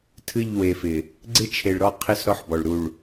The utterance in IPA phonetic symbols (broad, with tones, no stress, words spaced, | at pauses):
tʰɨ˦˨ʎwe˨fɪ˨ | ɡ͡ǀɪ˦t͡ʃʰe˨ɭɾɔ˦˨qʰɪ˦s ɾɔ˦ħbɔ˨ɭ ɾu˨ɭ